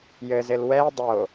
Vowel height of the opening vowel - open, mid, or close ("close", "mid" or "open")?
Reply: mid